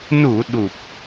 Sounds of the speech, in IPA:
nu˨˩˨ ɗu˨˩p̚

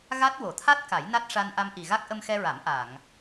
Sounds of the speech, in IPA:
ɣa˦˥t̚ wo˨˩˨t̪ʰa˦˥t̚ ka˨˩˦jna˦˥t̚ ʂa˧nʔa˧mʔi˨˩ɣa˦˥k̚ ʔə˧mxɛ˧ɹa˨˩˦m ʔa˨˩˨ŋ

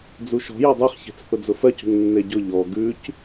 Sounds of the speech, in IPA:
d͡zuʃɔ̤jɔ dˤeχçe̤t͡s θʊd͡zʊfɜcṳŋ nːeɟʊ ʎɔ ɡʉc

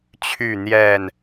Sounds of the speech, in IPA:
t͡ɕʰy˥˨n̪jɛ˥˨n

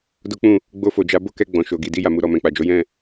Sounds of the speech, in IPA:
do˦k͡pũ˦˨ | ɡ͡bo˧fo˨d͡ʒa˨˦ bo˦kɛ˧ ɡ͡bɔ̃˨ʃo˨ɡi˨ di˧ja˨mu˨ ɾɔ˨ mɛ̃˨k͡pa˨d͡ʒo˨˦ jɛ̃˦˨

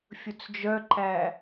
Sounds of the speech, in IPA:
fʲɵt͡sd͡ʒœǃæ

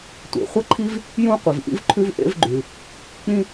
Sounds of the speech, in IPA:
tʷḛ˩χʷə˥ǃʰi˥v | jũ˥ qʷi˩vʔḭ˥vǃʰʉ˥v ʔḛ˥vɡ͡ǃʉ˩ | k͡pĩ˥

